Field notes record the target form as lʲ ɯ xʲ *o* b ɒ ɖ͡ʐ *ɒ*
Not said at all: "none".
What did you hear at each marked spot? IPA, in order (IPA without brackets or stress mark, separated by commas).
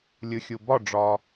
u, ɒː